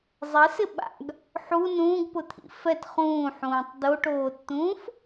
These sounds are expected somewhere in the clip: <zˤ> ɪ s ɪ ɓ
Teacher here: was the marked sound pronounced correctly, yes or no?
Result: yes